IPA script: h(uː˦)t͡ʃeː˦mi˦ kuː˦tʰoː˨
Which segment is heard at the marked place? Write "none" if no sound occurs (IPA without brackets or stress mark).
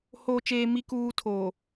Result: oː˦